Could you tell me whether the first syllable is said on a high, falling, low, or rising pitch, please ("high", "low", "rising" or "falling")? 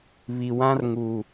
low